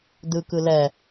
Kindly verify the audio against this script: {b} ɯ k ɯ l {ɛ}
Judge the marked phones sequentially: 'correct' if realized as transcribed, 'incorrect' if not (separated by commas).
incorrect, correct